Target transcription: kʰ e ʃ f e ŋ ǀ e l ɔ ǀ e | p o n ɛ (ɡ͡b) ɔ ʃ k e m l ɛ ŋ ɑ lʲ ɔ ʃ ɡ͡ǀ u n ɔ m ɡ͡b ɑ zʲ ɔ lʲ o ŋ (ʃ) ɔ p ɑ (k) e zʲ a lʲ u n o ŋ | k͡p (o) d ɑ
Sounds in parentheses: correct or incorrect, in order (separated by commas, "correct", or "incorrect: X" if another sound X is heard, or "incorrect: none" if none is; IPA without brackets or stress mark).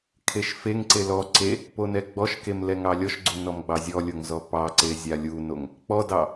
correct, incorrect: z, incorrect: ǀ, incorrect: ɔ